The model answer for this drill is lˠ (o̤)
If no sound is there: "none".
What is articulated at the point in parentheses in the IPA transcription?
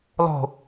o̤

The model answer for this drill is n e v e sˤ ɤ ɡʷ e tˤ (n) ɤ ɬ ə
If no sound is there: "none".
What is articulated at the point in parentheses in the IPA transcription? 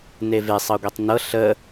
n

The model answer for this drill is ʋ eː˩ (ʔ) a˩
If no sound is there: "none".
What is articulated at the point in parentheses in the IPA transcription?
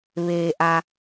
ʔ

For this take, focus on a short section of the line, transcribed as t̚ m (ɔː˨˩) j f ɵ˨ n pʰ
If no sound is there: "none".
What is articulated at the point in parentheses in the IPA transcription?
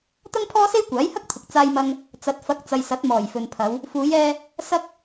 ɔː˨˩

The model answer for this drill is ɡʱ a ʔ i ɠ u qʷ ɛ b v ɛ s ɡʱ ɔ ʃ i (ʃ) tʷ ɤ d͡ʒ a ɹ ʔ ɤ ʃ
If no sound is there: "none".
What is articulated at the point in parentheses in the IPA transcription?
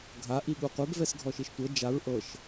ʃ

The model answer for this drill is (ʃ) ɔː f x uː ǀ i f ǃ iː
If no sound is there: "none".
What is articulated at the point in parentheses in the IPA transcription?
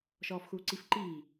ʃ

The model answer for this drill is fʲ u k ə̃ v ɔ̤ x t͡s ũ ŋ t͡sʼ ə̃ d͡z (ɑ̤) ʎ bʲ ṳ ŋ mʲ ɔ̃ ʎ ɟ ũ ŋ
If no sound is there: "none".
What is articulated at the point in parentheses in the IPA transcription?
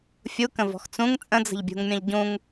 ə̤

